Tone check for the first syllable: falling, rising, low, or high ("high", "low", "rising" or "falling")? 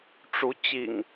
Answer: rising